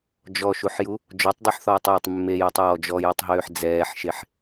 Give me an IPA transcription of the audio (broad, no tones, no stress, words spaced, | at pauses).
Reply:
d͡ʒɔʃuħju | d͡ʒɔtˤdˤoħθɔːtˤjetˤ mːejɛtˤɔː d͡ʒɔjutˤɦøːħ d͡zɛːħʃeħ